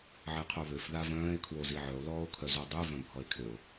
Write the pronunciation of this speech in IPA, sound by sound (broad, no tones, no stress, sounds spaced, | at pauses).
ʕ e qʰ o β ø f ð a v œ̃ː e̯ kʰ w o z i ʕ œ o̯ l ɔː o̯ kʰ œ z o dˤ y v œ̃ bʱ ɔ e̯ kʰ ø o̯